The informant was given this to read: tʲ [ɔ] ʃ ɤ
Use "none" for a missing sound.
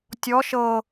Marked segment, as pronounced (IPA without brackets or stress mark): ɔ